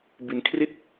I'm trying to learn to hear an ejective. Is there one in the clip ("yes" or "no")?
no